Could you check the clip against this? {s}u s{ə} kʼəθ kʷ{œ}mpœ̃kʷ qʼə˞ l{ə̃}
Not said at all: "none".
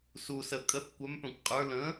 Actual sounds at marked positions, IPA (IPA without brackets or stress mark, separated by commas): s, ə, œ, ə̃